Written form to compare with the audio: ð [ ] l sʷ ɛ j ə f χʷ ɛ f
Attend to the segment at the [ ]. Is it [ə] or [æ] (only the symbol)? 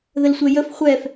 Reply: ə